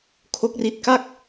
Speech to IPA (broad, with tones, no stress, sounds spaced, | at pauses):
kʰ o˦˥ k̚ r i˦˥ t̚ k a˥˩ k̚